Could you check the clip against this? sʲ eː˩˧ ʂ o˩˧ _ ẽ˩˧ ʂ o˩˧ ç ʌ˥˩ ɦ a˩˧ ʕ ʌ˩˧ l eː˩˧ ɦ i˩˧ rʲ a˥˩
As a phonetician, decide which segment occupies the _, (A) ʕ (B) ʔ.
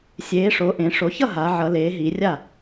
B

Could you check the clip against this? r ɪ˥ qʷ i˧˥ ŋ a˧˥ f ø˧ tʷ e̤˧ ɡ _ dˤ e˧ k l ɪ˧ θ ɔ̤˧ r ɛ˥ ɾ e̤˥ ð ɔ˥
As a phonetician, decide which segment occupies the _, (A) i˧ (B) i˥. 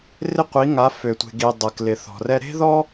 A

